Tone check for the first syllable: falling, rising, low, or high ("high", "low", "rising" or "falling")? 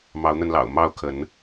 rising